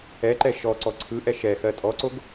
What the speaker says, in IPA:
ɛ ǃ ɛ ʃ ɔ ǀ ɔ ǀʰ ɯ ʔ ɛ ʃ ɛ x ɜ tʼ ɔ ǀ o ɡ

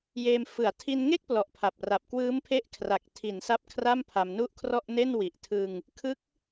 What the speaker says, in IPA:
j eː˧ m f ɯ˨˩ a̯ tʰ i˧ n ŋ e˥˩ k̚ p l ɔ˨˩ ʔ pʰ a˨˩ p̚ r a˨˩ p̚ k w ɯː˦˥ m pʰ e˦˥ ʔ kʰ r a˨˩ k̚ tʰ i˩˦ n s a˦˥ p̚ kʰ r a˥˩ m pʰ a˧ m n u˥˩ ʔ kʰ r ɔ˥˩ ʔ n e˥˩ n w i˨˩ ʔ tʰ ɯ˧ ŋ | kʰ ɯ˦˥ k̚

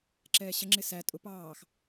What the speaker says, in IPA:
ǁ ɛː ɕ ə ŋ͡ǁ ɪ s æ tʼ ʊ p ɑː x

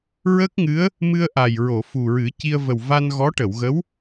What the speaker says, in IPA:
ɹ ə˦˥ k̚ ŋ ɨ˧˥ ə̯ | m ɨ˧ ə̯ ʔ a˨˩ j ɹ o˨˩˨ f u˨˩ ɹ ɨ˨˩˦ c i˧ ə̯ v ə˨˩ w v a˧ n ɣ ɔ˧˥ ʈ ə˨˩˨ w ɣ ə˧˥ w

